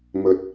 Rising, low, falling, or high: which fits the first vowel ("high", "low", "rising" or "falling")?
low